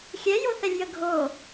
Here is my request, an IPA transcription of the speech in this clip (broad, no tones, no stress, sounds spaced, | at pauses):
xʲ ɛ j o θ ɛ lʲ j ə ɡʱ o